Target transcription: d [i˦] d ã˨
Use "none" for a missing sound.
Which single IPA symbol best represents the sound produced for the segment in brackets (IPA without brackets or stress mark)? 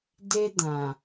e˦